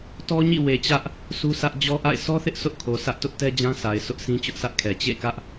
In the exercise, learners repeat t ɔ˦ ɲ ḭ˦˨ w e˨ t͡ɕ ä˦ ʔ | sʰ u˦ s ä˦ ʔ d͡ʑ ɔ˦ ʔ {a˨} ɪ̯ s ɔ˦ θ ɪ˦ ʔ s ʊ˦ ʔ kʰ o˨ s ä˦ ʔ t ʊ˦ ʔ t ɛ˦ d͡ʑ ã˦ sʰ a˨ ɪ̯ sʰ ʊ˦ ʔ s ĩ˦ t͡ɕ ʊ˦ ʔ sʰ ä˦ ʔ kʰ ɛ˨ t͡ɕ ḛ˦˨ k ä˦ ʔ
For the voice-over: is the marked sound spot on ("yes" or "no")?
no